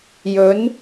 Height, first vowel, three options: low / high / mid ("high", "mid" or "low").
mid